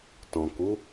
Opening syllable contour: low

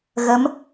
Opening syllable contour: rising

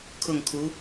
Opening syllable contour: falling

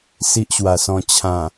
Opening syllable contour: high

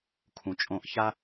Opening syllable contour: low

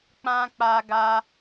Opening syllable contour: high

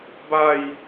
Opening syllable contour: falling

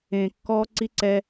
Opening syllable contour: low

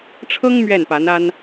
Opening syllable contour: high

